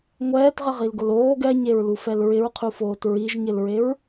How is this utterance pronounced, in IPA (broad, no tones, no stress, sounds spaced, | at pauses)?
ŋʷ ɛː t ʁ ɪ ʁ i l ɡ ʊ l oː ɡ ɛ ɲ e ɹ l u f ɛ l ɹ ɪ ɹ qʰ u f oː t ɹ i ʒ ɲ ɪ l ɹ e ɹ